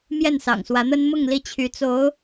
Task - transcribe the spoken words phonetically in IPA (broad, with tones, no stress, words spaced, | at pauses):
mjɛ˥˩nsɑ̰˨˩ŋswä˧˥n̪ə˥n mʊ˥˧ŋ li˥˩t͡ɕʰy˧˥t͡so˧˥ʊ̯